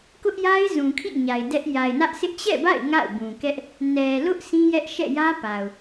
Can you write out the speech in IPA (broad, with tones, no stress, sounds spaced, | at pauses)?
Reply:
k ʊ˦ ʔ j a˦ ɪ̯ z ũ˨ kʰ ḭ˦˨ ɲ a˨ ɪ̯ d ɛ˦ ʔ j a˨ ɪ̯ n ä˦ ʔ s ɪ˦ ʔ t͡ɕ ɛ̰˦˨ b a̰˦˨ ɪ̯ ŋ a̰˦˨ ʊ̯ b ũ˨ k ɛ˦ ʔ | n ɛ˨ l ʊ˦ ʔ s ĩ˦ j ɛ˦ ʔ ʃ ɛ̰˦˨ j ä˦ p a˨ ʊ̯